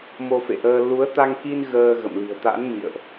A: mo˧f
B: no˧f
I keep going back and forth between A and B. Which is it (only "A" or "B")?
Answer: A